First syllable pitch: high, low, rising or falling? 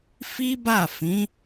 high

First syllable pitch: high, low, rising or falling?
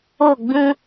falling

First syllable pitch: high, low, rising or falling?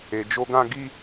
low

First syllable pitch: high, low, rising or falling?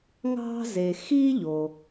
high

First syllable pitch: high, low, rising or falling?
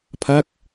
falling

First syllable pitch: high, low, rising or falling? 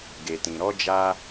low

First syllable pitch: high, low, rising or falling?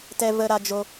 high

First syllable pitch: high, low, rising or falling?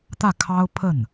falling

